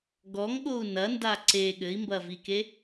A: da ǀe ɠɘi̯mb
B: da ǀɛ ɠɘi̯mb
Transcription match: A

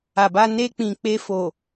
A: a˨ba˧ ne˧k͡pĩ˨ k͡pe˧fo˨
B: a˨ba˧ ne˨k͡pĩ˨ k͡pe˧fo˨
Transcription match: A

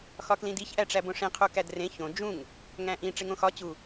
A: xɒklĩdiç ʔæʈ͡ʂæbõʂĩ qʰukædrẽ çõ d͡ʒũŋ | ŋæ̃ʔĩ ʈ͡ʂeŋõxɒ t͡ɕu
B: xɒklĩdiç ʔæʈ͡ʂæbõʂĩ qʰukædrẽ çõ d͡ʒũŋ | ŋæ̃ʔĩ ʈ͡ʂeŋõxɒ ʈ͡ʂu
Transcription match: A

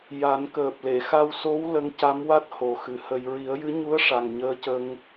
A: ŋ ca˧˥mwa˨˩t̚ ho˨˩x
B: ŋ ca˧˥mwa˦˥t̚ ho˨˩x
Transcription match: B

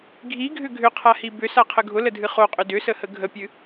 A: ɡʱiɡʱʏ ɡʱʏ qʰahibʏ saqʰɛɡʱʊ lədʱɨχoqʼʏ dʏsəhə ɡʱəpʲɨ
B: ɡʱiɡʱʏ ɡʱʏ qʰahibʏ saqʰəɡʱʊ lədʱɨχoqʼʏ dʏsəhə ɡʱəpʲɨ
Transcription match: B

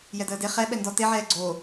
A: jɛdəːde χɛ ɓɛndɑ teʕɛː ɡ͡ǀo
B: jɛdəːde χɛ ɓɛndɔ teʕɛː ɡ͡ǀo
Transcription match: B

